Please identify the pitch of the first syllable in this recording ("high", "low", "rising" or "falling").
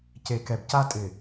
low